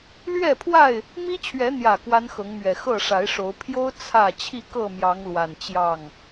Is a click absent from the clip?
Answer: yes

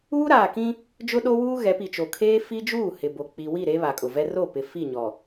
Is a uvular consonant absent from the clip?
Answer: yes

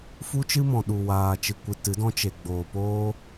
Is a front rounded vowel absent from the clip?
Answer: yes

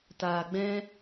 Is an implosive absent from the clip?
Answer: yes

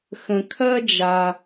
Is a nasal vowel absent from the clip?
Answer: no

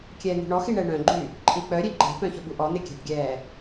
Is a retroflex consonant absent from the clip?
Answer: no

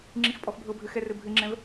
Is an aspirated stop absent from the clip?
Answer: yes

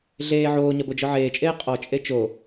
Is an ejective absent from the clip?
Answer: no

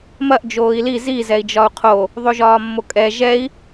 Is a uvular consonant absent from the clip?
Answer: no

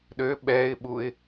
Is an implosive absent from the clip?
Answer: no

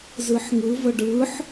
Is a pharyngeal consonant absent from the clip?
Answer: no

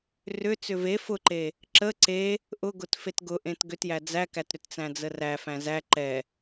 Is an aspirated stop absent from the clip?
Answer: yes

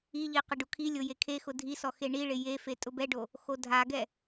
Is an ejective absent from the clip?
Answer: no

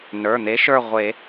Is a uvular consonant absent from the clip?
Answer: no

